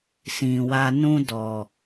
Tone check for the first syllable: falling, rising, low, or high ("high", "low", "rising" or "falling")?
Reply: low